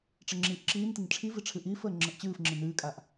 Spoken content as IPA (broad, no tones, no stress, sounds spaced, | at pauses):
ʈ͡ʂ ə ŋ͡ǁ iː ʔ ǁ iː n t ə n ʈ͡ʂʰ i v i ʈ͡ʂʰ ɨ ʔ iː f əː ŋ͡ǁ ə ʔ t͡ɕ ɨː f ŋ͡ǁ ɨ n ɨː kʼ a ʔ